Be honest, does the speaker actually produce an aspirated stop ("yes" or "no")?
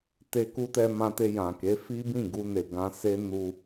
no